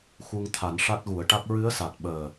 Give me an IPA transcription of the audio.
x u˧ ŋ t̪ʰ a˨˩˦ n ʂ a˦˥ t̚ ɣ u˨˩˦ ə̯ ʈ a˦˥ k̚ ɹ ɨ˧˥ ə̯ s a˨˩ t̚ ɓ əː˨˩

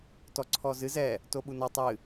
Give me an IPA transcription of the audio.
t ɔ ǀʰ ɔ z ɨ z ɛ | t o ɓ u n ɔ tˤ ɨ

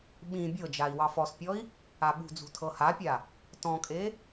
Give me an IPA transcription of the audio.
ɓ ĩ bʲ ɤ d͡ʒ a i̯ w ɑ f ɔ s pʲ ɔ i̯ | a ɓ ṳ d͡z ṳ tʰ ɤ h a pʲ a | t ɔ̃ kʼ e

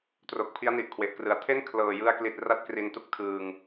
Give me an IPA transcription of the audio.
t r o˨˩ k̚ pʰ i˦˥ a̯ n i˨˩ ʔ kʰ w e˨˩ ʔ k r ɯ˩˦ a̯ tʰ e˥˩ n kʰ l ɤː˨˩ j ɯ˧ a̯ k l i˨˩ t̚ r a˥˩ t̚ k r i˨˩ n t u˦˥ k̚ tʰ ɯː˨˩ ŋ

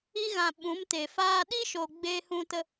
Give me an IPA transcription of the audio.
i˧ ɣ ã˨ ɓ ũ˨˦ m t e˨ f aː˦ ɗ i˦ ʃ o˨ ɡ͡b eː˦ h ũ˦ t ə˦

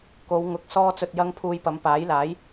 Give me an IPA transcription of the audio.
k o˨˧ w ŋ ʊ˨ k̚ s ɔː˧ t͡s ɵ˨ t̚ j ɐ˧ ŋ pʰ uː˧ j p ɐ˨˧ m p aː˨˥ j l aː˨˥ j

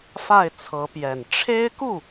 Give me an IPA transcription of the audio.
f a˥˩ ɪ̯ t͡sʰ ɤ˧˥ p j ɛ˨˩ n ʈ͡ʂʰ e˥ ɪ̯ k u˥˩

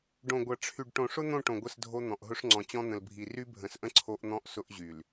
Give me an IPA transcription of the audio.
ɖ õ˨ ɡʷ ɐ˨ ʈ͡ʂʰ y˨ ɖ ʈ õ˨ ʂ ʊ˦ n̪ õ˦˨ ʈ õ˨ ɡʷ ə˦˨ s dʱ o˦ n̪ ɔ̃˨ ʔ ɦ ʊ˦ ʂ ŋ͡ǀ ɔ̃˨ t͡ɕ ɔ̃˦ n̪ ə̃˨ l bʱ i˨ r y˦ bʱ ə̃˨ s ʔ ə̃˦ ǀʰ o˦ ʔ n̪ ɔ̃˦ ʔ s ʊ˦ ʔ ʑ y˨ l

